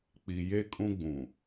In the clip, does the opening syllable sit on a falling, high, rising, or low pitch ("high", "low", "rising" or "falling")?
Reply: low